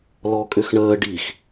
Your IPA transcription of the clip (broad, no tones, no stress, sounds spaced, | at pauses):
l ɔ kʼ ʏ x ɳ əː ɖ i x